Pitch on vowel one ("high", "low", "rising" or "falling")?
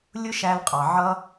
high